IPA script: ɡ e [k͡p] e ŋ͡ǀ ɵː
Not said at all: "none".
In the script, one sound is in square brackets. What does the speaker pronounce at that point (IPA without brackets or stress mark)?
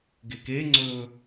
k